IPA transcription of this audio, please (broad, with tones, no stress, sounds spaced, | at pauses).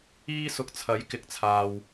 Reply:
iː˥ s ʊ˧ k̚ t͡sʰ ɐ˨˥ j k ɪ˨˥ k̚ t͡sʰ aː˨ w